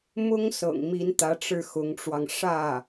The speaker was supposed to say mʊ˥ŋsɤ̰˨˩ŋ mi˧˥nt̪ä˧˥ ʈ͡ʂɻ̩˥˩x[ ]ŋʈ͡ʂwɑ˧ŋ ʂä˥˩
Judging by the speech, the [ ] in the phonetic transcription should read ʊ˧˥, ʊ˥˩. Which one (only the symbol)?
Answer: ʊ˧˥